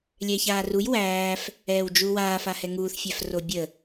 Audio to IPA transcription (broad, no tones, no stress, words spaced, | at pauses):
lʲɛːçaːruj wæːf | ɛːwd͡ʒu waːfahɛ ŋuːθfʲæf robʲə